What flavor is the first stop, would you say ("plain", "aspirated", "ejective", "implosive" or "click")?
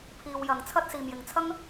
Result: aspirated